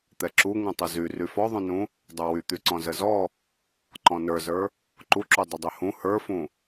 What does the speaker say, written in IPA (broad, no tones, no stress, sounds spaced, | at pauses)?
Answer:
t̪ ɛ ǁ u ŋ ũ tˤ ə z y r y f ɔ ðˤ ũ n ũ | dˤ ə˞ w y t̪ y ǀ ɔ̃ z ə z ɔ | ǃ ɔ̃ n ə˞ z ə˞ | ǃ u ǁ u dˤ ə dˤ y h ũ h ə˞ f ũ